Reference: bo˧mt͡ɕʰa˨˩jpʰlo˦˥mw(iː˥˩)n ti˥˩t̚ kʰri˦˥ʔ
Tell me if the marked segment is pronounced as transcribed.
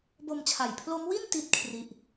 no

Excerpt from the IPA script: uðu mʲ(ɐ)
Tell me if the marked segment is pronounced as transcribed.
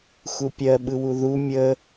no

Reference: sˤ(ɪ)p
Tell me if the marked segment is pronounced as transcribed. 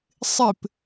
yes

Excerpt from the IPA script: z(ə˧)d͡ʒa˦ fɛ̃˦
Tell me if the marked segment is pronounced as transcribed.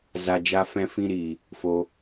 no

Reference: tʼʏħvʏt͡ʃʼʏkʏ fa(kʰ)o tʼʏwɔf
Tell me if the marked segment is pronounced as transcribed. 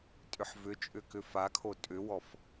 yes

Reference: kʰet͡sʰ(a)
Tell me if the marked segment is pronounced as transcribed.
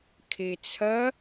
no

